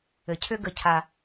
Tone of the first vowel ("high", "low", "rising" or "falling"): low